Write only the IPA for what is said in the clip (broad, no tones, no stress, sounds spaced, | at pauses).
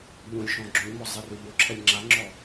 ʎ õ lʲ ʃ ɔ̃ ɡ͡ǁ õ ʎ m ɔ zˤ e r ø ʎ o ǁʰ ɛ lʲ ŋ͡ǁ a ŋ͡ǁ ɔ